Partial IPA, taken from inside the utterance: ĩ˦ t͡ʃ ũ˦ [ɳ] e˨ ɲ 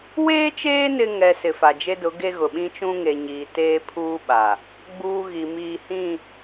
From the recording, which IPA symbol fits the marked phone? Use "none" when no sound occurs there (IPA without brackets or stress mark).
ŋ